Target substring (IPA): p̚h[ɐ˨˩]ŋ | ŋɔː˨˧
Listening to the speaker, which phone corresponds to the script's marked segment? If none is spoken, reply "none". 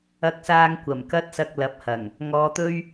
ɐ˨˩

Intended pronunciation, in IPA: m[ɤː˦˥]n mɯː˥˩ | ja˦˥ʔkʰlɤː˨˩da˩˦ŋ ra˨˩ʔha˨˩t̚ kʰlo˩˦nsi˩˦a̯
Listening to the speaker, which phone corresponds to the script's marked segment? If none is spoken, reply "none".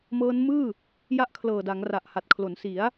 ɤː˦˥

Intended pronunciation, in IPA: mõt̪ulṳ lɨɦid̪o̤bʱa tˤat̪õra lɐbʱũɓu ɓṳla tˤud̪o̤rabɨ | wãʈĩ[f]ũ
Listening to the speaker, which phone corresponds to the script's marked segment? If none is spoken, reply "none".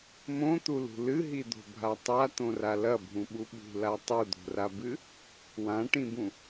b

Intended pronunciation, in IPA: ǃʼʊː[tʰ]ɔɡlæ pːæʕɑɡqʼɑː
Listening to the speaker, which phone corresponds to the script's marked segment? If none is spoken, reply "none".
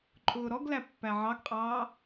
ɾ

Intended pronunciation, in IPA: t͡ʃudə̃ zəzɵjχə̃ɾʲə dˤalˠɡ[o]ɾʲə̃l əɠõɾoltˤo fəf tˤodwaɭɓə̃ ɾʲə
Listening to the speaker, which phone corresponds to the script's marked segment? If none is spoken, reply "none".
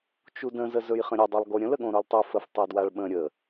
o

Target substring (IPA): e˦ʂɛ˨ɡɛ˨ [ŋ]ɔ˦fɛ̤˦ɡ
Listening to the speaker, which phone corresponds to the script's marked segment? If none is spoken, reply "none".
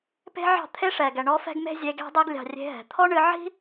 ɳ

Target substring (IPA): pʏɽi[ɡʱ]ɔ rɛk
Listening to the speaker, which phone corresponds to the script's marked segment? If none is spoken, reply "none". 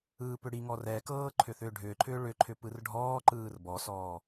ŋ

